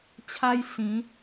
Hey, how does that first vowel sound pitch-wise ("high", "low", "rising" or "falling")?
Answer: high